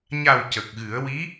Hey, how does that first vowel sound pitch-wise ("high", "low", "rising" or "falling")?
low